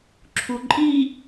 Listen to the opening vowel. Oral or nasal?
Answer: oral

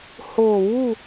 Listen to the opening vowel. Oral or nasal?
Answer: oral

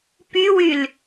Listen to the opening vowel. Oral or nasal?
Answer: oral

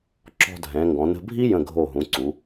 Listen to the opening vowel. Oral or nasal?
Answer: oral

